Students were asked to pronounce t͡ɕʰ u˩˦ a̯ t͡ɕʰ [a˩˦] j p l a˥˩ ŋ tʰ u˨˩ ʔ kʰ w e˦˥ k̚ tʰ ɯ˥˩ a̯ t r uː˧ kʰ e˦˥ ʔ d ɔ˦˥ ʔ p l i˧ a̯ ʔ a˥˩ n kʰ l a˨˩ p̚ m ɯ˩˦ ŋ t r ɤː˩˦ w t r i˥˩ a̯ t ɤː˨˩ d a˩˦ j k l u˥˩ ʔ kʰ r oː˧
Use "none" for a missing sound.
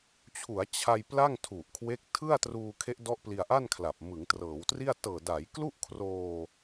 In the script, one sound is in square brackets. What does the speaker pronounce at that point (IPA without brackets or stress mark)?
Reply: a˧